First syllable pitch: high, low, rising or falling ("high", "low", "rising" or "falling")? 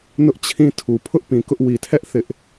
high